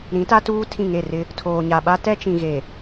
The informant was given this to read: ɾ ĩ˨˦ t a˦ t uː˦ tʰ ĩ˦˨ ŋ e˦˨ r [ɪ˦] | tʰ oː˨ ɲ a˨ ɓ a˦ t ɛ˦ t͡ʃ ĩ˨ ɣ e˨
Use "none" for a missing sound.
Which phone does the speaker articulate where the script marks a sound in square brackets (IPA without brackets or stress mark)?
ɪ˦